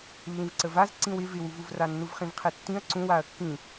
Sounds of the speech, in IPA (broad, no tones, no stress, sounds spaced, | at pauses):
lː ĩ v ǀ ə v a z ǀ ĩ w ɪ v ɪ w u v u v r a nː u v χ ĩ v qʰ e tː ĩ ɐ̯ ǀ ũ w a ɐ̯ kː ĩ